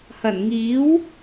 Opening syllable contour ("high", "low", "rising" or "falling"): low